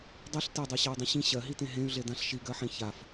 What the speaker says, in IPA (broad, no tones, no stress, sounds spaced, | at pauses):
dˤ i ɬ t e dˤ ɜ ɕ ɜ u̯ dˤ ẽ ɕ ĩ ɕ ɜ ɦ i t ẽ ɦ ẽ y̯ ɮ e d ã ɬ ʃ i ɡ ɜ ħ ẽ ç a f